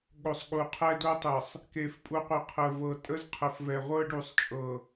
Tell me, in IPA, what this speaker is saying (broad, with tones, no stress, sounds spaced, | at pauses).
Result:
ɠ o˨ sˤ ɠ u˨ qʰ ɛ˦ d o˦ tˤ ə˨ sˤ | k e˨ f pʼ u˨ qʷ e˨ qʰ ə˨ v ɤ˨ tʼ ə˦ z qʰ ə˨ f v ɛ˨ ʁʷ ɤ˦ ɖ u˨ sˤ t͡ʃʼ ɤ˨